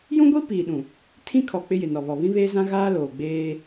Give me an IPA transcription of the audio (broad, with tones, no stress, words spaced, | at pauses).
jũ˦ɡʷi˦ piː˨ɗũ˨ | tʰĩ˦kʰɔ˨ k͡pɪ˦jɪ˨nɔ˨βɔ˨ βĩ˦βeː˦zã˦ ɣaː˦loː˨ ɡ͡beː˦